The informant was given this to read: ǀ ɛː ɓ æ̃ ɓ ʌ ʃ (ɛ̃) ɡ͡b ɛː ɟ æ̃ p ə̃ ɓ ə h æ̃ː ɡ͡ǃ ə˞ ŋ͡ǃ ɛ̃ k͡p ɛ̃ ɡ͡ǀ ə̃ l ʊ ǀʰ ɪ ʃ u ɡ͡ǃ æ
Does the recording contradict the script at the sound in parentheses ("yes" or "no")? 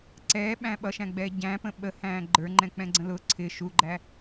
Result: yes